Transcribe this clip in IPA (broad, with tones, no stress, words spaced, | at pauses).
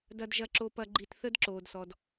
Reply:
dɐ˧dʒɐ˧ǁo˧pɐ˧ ɡ͡ǃi˧tθə˦dǁoː˨dsɔ˨d